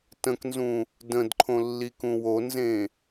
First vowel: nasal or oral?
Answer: nasal